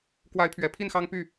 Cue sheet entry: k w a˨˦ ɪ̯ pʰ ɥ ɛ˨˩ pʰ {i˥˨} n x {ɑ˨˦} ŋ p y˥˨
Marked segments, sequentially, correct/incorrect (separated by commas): correct, incorrect